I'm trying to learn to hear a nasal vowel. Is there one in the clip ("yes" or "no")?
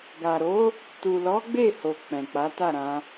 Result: yes